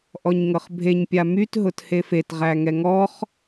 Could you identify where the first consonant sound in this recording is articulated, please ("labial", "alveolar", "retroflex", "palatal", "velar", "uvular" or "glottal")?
glottal